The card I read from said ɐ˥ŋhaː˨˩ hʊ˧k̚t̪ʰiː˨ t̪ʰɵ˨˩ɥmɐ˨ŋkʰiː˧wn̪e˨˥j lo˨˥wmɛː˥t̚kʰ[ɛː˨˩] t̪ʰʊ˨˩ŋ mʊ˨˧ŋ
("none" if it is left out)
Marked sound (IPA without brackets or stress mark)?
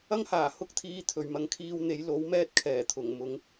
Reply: ɛː˨˩